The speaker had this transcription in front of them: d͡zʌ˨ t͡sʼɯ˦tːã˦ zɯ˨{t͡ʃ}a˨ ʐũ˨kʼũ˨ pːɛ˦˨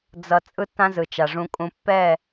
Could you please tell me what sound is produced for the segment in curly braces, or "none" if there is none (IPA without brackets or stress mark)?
t͡ʃ